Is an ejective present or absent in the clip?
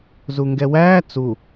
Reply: absent